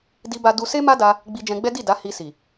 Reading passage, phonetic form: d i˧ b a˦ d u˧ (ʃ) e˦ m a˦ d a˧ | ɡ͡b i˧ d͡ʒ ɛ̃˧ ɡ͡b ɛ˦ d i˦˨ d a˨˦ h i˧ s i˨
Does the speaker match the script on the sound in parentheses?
no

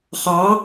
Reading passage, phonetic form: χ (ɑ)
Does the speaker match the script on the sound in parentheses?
yes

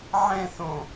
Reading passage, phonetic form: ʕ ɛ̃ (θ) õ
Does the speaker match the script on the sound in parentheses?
yes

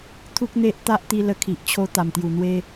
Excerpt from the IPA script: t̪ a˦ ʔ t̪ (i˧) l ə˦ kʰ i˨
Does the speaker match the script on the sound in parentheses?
yes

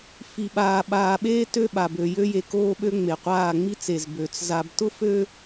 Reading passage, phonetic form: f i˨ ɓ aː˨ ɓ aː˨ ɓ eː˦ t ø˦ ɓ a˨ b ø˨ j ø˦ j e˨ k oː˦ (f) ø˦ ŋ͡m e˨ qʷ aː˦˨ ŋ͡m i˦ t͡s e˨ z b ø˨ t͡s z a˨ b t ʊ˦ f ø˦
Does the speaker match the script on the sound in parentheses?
no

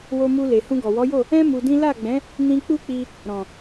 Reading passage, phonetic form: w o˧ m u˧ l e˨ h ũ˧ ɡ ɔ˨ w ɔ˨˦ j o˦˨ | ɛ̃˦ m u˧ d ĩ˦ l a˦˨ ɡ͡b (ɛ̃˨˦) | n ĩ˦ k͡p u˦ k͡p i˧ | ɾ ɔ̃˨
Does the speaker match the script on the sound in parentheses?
yes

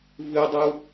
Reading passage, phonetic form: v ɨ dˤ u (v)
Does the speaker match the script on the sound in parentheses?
no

